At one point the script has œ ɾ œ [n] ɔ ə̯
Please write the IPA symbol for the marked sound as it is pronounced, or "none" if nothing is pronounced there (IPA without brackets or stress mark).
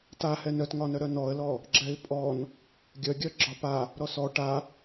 n